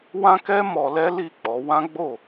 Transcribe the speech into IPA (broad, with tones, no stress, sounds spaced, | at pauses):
w ã˦ k ɛ˦ m ɔ˧ l ɛ˦ l i˦˨ k͡p ɔ˨˦ w ã˦ ɡ͡b o˦˨